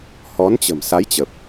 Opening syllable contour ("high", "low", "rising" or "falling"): rising